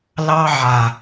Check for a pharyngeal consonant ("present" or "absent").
present